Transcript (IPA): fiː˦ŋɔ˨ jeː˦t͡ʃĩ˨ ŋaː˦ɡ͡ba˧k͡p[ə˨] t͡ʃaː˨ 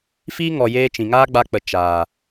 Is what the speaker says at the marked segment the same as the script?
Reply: yes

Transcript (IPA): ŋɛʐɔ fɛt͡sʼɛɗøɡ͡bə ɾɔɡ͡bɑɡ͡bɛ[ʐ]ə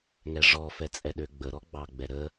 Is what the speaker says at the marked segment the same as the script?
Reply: no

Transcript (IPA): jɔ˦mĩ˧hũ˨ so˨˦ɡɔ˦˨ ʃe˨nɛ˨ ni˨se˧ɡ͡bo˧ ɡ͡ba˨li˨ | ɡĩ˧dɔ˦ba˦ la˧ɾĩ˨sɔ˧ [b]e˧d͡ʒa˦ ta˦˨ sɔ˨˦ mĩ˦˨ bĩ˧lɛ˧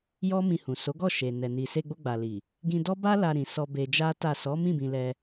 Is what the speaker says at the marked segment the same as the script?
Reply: yes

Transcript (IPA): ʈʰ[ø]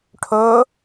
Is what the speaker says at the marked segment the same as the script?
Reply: no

